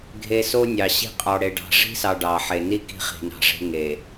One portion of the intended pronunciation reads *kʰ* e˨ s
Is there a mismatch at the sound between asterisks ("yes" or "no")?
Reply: yes